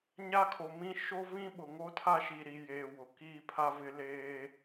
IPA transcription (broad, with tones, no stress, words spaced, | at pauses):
ɲa˦kʰo˨mĩ˦ ʃo˦vĩ˦ɓʊ˨ŋo˦ tʰa˦ʃi˨ɾi˨ jeː˨ wʊ˨ kiː˦pʰa˦vɪ˦ leː˦